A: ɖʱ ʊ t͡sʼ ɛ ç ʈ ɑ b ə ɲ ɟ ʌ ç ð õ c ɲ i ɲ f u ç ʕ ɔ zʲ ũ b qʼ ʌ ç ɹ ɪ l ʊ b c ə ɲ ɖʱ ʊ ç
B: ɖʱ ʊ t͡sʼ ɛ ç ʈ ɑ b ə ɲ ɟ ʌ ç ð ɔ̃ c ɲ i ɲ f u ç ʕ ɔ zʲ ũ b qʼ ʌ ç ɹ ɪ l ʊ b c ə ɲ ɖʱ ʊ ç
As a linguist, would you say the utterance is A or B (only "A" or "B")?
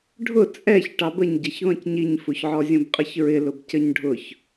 B